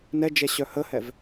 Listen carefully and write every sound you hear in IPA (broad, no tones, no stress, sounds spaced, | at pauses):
n ɛ d͡ʒ ɛ ɕ œ h ə h ɛ v